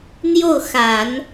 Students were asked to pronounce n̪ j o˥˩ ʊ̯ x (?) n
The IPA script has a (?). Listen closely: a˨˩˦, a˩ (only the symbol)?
a˨˩˦